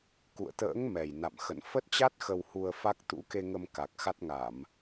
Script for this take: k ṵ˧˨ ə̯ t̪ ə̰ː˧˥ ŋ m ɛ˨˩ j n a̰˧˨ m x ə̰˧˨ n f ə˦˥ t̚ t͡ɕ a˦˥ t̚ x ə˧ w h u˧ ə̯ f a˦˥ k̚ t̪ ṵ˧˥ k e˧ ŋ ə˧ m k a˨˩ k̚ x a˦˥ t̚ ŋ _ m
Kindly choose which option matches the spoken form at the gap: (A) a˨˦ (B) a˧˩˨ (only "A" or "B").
B